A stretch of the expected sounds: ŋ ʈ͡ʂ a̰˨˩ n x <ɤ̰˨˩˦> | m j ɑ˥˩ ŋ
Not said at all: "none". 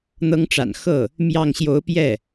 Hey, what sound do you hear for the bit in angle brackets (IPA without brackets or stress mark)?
ɤ˥˩